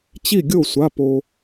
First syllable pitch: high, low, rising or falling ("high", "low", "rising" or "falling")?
falling